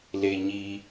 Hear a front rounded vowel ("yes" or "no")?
no